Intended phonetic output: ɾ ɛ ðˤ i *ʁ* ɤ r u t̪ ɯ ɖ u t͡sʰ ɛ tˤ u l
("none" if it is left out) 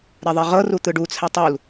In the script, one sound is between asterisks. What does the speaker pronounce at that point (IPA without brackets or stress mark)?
ʁ